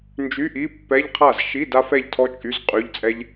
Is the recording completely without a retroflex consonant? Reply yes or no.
yes